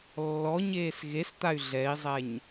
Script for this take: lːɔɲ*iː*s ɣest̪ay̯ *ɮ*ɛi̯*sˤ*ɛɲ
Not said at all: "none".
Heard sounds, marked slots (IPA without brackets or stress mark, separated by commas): eː, ɮ, zˤ